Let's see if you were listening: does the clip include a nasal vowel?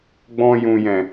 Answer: yes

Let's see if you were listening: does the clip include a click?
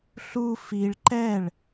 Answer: yes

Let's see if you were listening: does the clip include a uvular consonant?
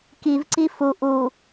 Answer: no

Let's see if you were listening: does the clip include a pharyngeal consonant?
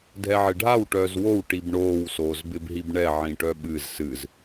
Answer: yes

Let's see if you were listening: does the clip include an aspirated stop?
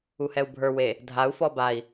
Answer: no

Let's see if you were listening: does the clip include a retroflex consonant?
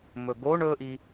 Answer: yes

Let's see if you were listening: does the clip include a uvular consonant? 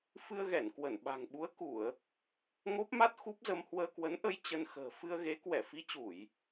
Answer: no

